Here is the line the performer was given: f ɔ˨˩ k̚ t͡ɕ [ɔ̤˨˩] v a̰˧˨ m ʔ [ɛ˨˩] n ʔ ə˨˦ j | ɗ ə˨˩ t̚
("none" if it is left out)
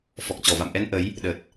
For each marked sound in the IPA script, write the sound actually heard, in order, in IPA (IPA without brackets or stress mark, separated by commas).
ɔ˧˩, ɛ˧